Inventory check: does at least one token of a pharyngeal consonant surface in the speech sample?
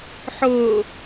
yes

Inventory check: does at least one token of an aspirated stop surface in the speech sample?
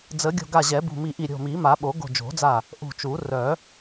no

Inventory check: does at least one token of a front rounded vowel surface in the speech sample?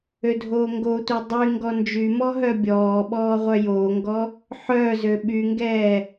yes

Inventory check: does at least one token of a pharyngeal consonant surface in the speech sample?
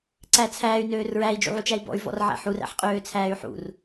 yes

